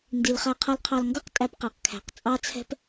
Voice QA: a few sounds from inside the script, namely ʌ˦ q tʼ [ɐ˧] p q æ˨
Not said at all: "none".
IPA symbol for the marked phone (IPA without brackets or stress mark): æ˧